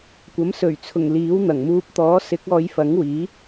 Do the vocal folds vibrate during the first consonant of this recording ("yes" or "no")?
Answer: no